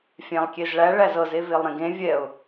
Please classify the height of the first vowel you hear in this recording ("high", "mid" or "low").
low